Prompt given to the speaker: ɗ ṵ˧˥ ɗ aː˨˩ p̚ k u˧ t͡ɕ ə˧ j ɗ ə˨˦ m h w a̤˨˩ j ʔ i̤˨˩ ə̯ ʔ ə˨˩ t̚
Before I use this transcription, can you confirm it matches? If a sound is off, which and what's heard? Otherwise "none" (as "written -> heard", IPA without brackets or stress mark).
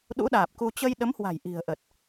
none